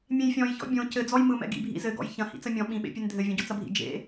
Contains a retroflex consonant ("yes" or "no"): no